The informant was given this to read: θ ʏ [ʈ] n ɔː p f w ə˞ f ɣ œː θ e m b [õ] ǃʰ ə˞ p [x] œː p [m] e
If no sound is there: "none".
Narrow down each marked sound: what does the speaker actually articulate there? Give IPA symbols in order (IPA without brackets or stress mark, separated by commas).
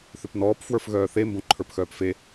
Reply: p, õ, x, f